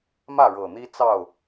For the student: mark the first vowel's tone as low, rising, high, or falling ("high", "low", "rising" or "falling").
falling